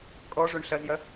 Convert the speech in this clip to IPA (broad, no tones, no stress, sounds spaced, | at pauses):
kʼ ɔ ʐ o ɳ ɬ ɐ z j ɐ